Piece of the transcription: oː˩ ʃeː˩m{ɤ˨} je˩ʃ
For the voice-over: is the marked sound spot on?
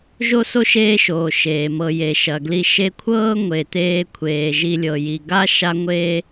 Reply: yes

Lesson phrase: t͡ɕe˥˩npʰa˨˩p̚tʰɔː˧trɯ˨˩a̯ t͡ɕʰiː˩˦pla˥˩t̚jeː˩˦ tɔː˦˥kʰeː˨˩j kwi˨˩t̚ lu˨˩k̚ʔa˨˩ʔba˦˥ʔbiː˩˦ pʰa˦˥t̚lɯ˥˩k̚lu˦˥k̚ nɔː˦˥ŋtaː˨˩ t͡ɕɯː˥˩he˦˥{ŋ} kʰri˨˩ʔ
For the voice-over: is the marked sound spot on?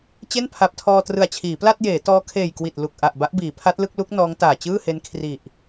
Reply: no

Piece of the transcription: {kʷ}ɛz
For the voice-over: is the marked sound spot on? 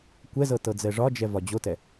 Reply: yes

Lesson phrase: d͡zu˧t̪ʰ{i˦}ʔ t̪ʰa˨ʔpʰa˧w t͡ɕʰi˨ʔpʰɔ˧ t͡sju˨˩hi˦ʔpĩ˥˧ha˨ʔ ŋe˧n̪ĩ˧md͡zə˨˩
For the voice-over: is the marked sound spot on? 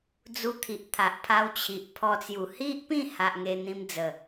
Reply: no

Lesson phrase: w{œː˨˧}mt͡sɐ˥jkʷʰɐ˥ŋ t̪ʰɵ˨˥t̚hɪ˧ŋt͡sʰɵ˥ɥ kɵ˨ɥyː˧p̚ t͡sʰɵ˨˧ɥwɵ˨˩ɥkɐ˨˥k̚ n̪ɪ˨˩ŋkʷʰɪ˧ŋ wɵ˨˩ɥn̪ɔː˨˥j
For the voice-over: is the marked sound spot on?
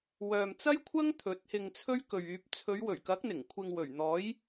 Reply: no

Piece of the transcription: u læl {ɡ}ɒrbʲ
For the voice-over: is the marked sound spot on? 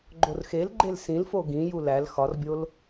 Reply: no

